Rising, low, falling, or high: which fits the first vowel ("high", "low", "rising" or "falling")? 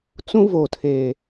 high